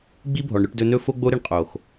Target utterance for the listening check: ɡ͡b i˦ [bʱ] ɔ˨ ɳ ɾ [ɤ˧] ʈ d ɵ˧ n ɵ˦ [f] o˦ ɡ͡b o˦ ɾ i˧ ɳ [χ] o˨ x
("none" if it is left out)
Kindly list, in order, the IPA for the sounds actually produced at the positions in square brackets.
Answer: bʱ, ɵ˧, f, qʼ

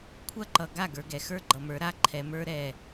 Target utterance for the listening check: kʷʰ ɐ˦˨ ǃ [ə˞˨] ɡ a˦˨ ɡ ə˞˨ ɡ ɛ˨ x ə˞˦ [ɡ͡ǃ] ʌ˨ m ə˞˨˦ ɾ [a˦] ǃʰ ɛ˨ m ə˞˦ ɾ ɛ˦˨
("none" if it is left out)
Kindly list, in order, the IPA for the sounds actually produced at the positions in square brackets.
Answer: ʌ˨, ɡ͡ǃ, a˦

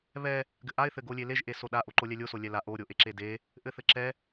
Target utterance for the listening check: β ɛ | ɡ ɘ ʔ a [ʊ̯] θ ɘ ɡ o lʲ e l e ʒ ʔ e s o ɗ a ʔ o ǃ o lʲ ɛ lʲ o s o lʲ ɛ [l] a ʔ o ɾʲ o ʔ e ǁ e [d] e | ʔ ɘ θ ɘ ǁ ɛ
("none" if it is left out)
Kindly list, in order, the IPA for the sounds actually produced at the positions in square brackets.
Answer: ɪ̯, l, d

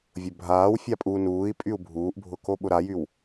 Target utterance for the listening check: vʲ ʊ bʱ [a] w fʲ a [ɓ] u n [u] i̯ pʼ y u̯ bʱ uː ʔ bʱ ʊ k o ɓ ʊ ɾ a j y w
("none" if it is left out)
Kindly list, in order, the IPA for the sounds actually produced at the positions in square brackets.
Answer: aː, pʼ, uː

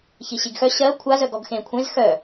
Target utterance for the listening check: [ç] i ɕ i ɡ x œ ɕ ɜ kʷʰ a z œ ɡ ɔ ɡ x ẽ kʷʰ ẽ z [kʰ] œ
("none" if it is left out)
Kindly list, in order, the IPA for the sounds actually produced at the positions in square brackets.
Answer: ç, x

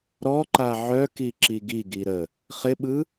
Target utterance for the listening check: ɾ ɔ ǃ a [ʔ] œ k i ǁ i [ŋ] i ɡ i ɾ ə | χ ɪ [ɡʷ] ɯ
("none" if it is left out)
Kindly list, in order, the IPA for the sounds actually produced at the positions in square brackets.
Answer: ʕ, ɡ, ɓ

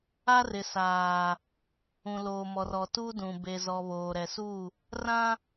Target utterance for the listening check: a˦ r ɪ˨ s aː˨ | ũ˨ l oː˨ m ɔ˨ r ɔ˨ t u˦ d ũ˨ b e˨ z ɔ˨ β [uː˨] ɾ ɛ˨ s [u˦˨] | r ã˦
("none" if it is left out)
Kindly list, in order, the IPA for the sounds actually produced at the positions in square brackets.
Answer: oː˨, u˦˨

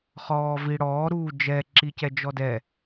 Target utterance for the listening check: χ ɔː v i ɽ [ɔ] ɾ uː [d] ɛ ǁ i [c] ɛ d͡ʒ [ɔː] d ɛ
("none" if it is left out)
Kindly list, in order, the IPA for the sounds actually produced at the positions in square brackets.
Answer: ɔː, d͡ʒ, c, ɔ

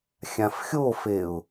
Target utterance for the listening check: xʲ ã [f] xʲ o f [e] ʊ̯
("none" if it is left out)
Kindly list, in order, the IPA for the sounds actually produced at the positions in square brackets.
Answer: f, e

